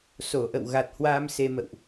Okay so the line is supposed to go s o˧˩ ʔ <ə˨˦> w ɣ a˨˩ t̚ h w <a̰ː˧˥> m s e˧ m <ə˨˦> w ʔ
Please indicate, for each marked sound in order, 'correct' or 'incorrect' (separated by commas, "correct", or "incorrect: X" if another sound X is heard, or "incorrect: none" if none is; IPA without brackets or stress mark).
incorrect: ə̰˧˨, incorrect: aː˧, incorrect: ə̰˧˨